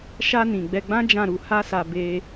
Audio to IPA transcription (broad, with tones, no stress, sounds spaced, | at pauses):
ʃ a˧ n ĩ˨ ɡ͡b ɛ˧ ɡ͡b ã˦ d͡ʒ ã˦˨ ɾ u˧ h a˦ s a˧ b e˧